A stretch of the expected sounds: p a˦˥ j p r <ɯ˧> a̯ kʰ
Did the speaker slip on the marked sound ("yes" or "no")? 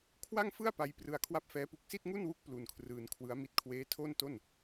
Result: no